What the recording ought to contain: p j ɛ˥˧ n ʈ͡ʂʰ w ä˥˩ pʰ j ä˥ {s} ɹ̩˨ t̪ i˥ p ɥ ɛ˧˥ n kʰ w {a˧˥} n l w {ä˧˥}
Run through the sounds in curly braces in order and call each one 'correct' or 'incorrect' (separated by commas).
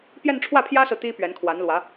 correct, correct, correct